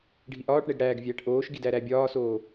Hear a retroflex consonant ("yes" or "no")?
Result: yes